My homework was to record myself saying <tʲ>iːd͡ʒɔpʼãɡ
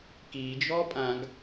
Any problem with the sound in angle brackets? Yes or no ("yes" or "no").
yes